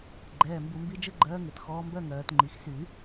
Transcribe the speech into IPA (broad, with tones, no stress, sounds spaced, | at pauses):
ɡ͡ǃ ɛː˩˧˩ m b u˨˩˦ m b i˧˥ d͡ʒ ɘ˥˧ ɡ͡ǃ ɜː˧˥ ŋ ɘ˨˩˦ t x ɔː˧˥ m b ɜ˥˧ ŋ ɜː˨˩˦ t ŋ͡ǃ i˩˧˩ x s y˨˩˦